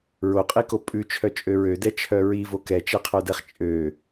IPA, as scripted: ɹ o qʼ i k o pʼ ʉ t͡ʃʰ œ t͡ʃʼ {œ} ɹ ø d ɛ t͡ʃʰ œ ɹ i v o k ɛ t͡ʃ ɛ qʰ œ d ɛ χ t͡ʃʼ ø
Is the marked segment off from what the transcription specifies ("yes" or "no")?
yes